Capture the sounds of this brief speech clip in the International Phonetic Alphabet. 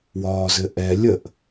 w ɒː z ɘ ʔ ɛ lʲ ə ʔ

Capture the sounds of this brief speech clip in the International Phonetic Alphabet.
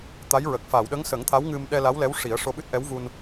t̪ a˧˥ j ɹ ə˨˩ k̚ f aː˨˩˨ w ɗ ə˧˥ ŋ s ə˨˩˦ ŋ t̪ʰ a˧˥ w ŋ ɨ˧ m ɗ ɛ˧ l a˧˥ w l ɛ˧˥ w ʂ i˨˩˦ ə̯ ʂ o˧ ɓ ɨ˦˥ t̚ ʔ ɛ˧˥ w v u˧ n

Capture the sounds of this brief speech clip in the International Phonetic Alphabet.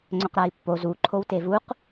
ŋ͡ǀ ɵ q ɾ a i̯ pː o z u ǃʰ o w t e v u q

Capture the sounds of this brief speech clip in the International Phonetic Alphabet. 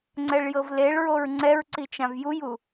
ŋ͡ǀ ɛ ɭ j ɤ v l e ɭ ɹ o ɹ ŋ͡ǀ ɛ ɹ ǀ i t͡ʃ ã v j u j u

